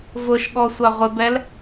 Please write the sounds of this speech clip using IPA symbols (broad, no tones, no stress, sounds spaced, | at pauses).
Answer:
v ʊ ʃ ɠ ɔ sʷ a ʁʷ ɪ b ɛ l